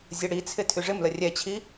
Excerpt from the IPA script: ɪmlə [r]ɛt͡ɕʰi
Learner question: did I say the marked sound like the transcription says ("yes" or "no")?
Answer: no